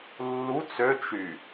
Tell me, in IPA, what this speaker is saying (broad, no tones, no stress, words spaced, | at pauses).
lːu t͡sø t͡ʃy